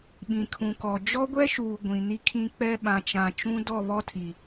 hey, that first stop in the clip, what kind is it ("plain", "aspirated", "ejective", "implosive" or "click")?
implosive